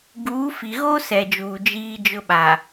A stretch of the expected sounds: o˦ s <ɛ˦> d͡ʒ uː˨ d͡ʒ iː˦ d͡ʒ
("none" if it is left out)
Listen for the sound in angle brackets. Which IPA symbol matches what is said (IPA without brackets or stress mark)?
ɛ˨